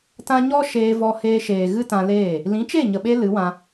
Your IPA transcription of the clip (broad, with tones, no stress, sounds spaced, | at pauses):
t ã˦ ɲ ɔ˦ ʃ eː˧ v ɔ˧ h eː˧ ʃ eː˨ ɣ ɨ˦ t ã˧ l eː˦˨ | l ĩ˨˦ t͡ʃ e˦˨ ɲ ə˨ ɓ e˧ l ɨ˨˦ w ã˧